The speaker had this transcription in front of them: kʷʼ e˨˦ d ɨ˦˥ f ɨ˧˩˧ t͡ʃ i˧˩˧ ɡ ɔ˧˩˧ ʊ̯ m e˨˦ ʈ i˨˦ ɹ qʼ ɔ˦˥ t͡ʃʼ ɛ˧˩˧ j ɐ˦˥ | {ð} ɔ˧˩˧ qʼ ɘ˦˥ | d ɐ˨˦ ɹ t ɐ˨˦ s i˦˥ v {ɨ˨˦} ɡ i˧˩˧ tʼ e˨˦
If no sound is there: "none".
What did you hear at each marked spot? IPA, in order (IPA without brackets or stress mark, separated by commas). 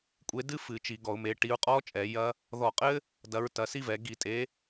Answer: ð, ɛ˨˦